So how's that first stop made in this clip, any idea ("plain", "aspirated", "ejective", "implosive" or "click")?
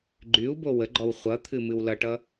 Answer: click